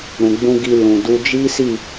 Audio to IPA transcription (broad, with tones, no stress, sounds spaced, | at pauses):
ɾ ũ˨ ɡ͡b ũ˧ ɡ i˧ l ũ˨ d u˧ d͡ʒ i˦ s i˦˨